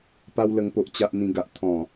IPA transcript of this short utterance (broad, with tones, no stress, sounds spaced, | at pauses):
p a˧ w l ə˨˩ ŋ p o˨ ʔ t͡ɕ a˨ ʔ n̪ ĩ˨˩ ɡ a˨ ʔ t̪ʰ ɔ̃˨˩